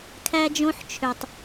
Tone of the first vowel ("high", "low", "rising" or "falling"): high